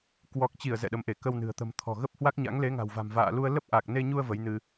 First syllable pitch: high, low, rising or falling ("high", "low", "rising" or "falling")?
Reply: low